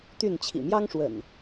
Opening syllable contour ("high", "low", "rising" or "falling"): falling